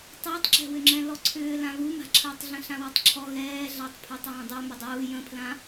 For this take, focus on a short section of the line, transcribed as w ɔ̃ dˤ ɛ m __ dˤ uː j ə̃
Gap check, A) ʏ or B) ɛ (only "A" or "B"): A